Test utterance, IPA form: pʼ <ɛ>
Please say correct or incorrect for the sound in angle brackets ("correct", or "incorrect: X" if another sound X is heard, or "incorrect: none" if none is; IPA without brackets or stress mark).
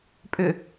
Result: incorrect: ʏ